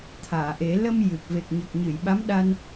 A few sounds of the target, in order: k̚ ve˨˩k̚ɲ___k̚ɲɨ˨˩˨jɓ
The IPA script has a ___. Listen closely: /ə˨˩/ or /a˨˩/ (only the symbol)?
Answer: ə˨˩